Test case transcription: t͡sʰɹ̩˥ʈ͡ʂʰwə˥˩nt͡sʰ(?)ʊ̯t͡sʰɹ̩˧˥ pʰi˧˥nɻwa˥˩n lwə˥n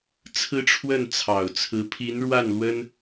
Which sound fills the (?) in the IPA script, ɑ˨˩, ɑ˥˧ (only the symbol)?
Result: ɑ˨˩